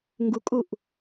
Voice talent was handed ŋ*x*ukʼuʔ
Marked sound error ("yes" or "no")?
yes